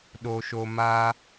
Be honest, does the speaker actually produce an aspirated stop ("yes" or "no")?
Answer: no